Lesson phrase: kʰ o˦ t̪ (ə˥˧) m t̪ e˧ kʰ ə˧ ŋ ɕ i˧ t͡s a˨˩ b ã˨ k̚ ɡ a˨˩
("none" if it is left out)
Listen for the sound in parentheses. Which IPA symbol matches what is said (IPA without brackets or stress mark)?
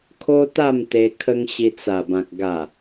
a˥˧